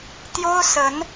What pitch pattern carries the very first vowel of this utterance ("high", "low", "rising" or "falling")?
high